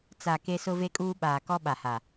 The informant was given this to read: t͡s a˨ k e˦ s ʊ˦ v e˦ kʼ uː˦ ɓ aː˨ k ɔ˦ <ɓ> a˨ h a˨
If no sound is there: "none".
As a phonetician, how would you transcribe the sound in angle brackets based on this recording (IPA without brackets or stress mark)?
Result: ɓ